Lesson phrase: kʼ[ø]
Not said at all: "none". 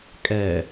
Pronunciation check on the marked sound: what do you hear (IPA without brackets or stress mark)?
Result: ɛ